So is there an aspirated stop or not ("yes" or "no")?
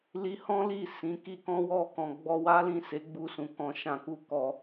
no